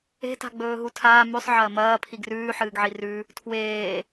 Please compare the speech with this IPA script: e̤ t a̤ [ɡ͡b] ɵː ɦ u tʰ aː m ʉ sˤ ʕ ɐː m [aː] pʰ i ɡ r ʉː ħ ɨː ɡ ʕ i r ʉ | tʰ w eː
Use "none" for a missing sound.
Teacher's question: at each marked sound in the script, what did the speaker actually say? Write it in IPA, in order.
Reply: ɡ͡b, ɐː

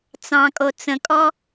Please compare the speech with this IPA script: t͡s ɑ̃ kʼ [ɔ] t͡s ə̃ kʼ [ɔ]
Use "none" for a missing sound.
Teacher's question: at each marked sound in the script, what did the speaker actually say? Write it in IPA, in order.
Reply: o, ɔ

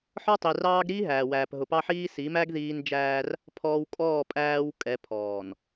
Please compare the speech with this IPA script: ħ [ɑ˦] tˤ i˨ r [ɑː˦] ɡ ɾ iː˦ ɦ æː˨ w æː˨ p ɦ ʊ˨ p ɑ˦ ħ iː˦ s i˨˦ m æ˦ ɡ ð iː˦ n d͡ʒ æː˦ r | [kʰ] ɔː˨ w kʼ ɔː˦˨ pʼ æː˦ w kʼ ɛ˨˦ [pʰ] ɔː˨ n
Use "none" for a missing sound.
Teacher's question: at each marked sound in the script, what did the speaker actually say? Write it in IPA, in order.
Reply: ɔ˦, ɑː˦, pʰ, pʰ

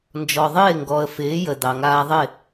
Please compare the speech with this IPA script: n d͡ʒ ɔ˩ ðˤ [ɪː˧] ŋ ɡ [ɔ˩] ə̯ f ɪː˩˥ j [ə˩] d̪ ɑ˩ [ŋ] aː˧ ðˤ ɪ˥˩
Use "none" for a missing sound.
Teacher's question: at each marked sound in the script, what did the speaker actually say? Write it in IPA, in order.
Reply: ɪː˥˩, ɔ˩, ə˩, ŋ

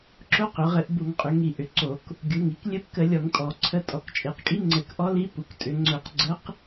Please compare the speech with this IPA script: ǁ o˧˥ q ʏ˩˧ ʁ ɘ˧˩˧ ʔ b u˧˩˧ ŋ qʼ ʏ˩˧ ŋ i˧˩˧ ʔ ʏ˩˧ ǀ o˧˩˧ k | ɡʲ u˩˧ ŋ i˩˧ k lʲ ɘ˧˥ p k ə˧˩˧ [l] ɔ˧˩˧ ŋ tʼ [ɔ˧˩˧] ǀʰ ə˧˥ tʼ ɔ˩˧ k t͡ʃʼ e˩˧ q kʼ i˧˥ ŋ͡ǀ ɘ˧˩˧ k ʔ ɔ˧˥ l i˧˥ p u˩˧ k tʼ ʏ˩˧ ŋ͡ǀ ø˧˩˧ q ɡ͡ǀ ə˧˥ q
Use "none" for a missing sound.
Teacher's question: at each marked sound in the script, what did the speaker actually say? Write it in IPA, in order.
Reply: lʲ, ɔ˧˩˧

